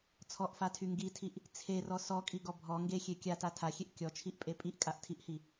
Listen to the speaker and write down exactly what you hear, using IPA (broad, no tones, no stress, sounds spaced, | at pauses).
t͡sʰ ɔ ʔ f a tʰ y ŋ ɡ i tʰ i ʔ | t͡sʰ e r ɔ s ɔ kʼ i ɡ ɔ bʱ ɔ ŋ ɡ e xʲ e kʲ a t a tʰ a xʲ e ʔ kʲ ɔ t͡ʃʰ i ʔ pʼ e pʼ i ʔ kʼ a ʔ tʰ i ʔ h i